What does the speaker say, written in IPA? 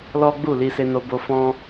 lɔ˦ɡ͡bu˦˨ li˧se˧no˧bo˧ fɔ̃˦

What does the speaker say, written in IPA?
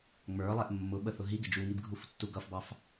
ŋ͡mə˞lˠɛʔ mːʊɓəθʊ ɦiɡɪ d͡ʒuŋibɡʱuftːu ɡʌfbɑf

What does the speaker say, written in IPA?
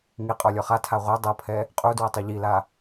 ŋiqʼɔlʲɔ χatʰa ʁʷɤ dˤɤpʰɛ | qʼudwɤtˤu ʎila

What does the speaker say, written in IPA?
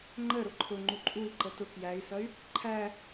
ŋ͡ǃə ɾʊǃʰʊŋ͡ǃu ǃʼui̯ǃə tʊ kjæi̯sʌy̯ | ǃʰæ

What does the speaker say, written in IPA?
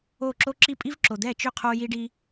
o˥˩ǁo˥ǁi˥ pʼi˥vǁo˨d̪ɛ˥˩ t͡ʃʏ˥˩ qʰo˥ji˥ɖi˥

